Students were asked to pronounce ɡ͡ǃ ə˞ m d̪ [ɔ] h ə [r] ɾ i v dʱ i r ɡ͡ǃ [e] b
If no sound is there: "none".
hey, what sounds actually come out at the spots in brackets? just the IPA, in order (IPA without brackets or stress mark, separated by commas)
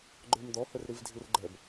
ɔ, r, ɛ